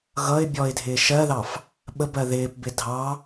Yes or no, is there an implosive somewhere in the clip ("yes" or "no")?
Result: yes